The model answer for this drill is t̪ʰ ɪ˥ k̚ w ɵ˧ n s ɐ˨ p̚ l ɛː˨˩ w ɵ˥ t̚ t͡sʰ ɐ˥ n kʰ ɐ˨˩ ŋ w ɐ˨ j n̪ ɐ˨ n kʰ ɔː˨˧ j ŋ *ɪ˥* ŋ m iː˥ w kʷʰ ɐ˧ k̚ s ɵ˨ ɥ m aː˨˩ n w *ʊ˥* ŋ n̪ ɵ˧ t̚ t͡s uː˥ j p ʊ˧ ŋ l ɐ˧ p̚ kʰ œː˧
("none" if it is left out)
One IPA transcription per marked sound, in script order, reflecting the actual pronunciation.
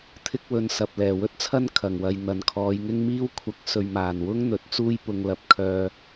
ɪ˥, ʊ˥

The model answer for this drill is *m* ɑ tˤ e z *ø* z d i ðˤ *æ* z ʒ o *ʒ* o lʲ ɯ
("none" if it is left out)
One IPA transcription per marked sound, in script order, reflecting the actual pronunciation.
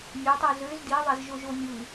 mʲ, ø, æ, ʒ

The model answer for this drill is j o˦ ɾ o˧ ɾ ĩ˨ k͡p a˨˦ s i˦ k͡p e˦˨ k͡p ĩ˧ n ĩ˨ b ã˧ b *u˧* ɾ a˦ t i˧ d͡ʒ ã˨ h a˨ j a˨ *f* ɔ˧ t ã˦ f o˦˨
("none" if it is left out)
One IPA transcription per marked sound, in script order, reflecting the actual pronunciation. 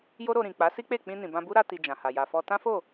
u˦, f

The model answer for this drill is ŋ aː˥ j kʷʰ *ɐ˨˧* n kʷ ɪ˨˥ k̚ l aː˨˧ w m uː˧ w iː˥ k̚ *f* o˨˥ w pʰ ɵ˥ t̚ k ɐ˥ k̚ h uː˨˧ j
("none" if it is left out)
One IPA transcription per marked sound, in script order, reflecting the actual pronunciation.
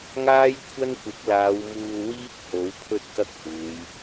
ɐ˥, h

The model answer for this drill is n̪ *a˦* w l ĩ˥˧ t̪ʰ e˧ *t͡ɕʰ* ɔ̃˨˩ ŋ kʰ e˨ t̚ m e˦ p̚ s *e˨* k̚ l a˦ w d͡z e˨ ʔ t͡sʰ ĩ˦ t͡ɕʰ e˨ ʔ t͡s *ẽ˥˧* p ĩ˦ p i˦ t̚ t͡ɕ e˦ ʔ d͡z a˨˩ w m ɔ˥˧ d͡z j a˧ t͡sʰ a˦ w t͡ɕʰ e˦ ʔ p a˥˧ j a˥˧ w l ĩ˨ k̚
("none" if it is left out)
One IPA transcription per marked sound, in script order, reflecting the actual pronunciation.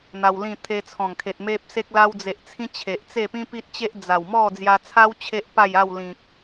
a˧, t͡sʰ, e˦, e˥˧

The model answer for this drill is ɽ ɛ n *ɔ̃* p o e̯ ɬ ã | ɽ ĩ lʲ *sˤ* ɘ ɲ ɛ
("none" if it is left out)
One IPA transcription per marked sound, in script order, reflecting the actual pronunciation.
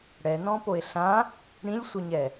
ɔ̃, sʷ

